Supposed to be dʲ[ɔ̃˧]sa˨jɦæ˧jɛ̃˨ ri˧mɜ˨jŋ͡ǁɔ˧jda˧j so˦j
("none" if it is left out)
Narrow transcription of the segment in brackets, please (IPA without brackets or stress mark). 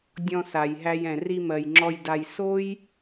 ɔ̃˧